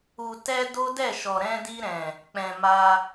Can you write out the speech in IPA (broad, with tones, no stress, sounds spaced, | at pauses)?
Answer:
u˨ t ɛ˧ d o˦ d ɛ˦˨ ʃ ɔ˨ ɾ ɛ̃˧ d i˧ ɾ ɛ̃˨ | k͡p ɛ̃˨ m a˧